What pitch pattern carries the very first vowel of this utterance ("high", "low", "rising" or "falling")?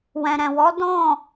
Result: low